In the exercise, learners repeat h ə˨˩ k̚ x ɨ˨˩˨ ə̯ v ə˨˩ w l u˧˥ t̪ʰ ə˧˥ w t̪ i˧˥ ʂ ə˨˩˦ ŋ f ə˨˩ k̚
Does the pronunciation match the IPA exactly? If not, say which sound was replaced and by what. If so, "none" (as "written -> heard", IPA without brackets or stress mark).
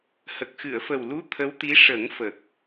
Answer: v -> f